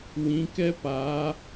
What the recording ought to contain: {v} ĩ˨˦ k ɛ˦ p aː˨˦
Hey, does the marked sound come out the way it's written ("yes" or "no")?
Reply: no